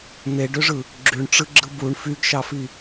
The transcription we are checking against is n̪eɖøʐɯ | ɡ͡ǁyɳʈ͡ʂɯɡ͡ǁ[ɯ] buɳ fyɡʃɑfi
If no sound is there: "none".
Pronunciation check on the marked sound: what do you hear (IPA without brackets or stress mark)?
ɯ